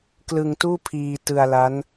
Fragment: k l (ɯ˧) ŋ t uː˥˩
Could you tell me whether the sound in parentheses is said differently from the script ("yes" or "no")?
no